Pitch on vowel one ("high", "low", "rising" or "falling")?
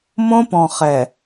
high